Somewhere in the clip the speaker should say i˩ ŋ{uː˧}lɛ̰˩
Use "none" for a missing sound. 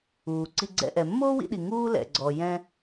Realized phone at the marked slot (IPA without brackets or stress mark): uː˥